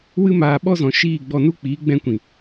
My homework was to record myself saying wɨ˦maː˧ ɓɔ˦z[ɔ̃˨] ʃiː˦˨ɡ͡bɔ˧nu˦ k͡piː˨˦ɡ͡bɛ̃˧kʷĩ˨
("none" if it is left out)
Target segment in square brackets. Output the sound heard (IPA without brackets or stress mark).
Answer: ɔ̃˨